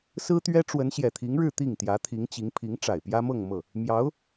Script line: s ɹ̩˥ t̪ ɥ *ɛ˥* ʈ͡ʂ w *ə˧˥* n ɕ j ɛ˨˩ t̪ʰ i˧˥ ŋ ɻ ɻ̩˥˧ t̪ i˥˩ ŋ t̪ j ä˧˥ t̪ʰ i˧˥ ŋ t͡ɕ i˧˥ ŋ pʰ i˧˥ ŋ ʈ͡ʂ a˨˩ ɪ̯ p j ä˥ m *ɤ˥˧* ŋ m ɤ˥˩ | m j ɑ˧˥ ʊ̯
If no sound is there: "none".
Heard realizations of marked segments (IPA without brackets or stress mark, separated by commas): ɛ˥, ə˧˥, ɤ˥˧